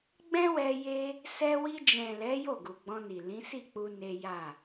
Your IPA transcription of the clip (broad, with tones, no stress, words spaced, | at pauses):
ɡ͡bɛ̃˦wɛ˧ je˦ | sɛ˧ wi˧d͡ʒɛ̃˨lɛ˨˦ jo˦˨ɡu˨ɡ͡bɔ̃˧ni˨ lĩ˨˦si˦˨k͡pu˧ ne˦ ja˦˨